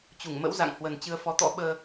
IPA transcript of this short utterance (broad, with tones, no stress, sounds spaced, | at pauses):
t͡ɕ u˧˩ ŋ m ə̰˧˥ w z a̰˧˨ ŋ h w ə˨˩ n t͡ɕ ɨ˧ ə̯ f ɔ˨˦ t̪ ɔ̰˧˥ ɓ əː˧